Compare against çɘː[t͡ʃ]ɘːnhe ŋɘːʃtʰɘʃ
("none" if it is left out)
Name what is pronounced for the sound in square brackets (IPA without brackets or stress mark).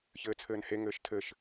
t͡sʰ